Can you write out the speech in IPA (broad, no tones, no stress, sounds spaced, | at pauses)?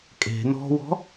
kʼ e̤ n ɔ̤ w ɔ̤